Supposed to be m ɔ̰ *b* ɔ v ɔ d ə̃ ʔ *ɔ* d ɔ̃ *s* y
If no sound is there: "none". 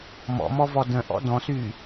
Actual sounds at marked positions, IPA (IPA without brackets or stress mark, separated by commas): m, ɔ̰, s